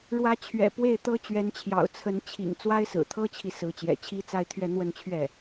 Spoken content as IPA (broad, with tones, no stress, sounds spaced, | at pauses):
ɻ w ä˧˥ t͡ɕʰ ɥ ɛ̰˨˩ p w e˥˩ ɪ̯ t̪ ɤ˥ t͡ɕ ɥ ɛ˧˥ n t͡ɕʰ j ɑ̰˨˩ ʊ̯ t͡sʰ ə˧˥ n t͡ɕʰ ḭ˨˩ ŋ t͡s w a˥ ɪ̯ s ɹ̩˨˩ t̪ʰ ɤ˥ t͡ɕʰ i˨ s ɹ̩˧˥ t͡ɕ j ɛ̰˨˩ t͡ɕʰ i˥ t͡s a˥˧ ɪ̯ t̪ʰ ɥ ɛ˥˧ n̪ w ə˥˧ n t͡ɕʰ ɥ ɛ˥˩